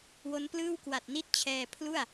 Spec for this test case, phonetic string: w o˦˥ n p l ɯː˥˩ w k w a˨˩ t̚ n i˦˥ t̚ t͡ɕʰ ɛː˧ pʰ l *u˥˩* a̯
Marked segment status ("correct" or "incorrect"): correct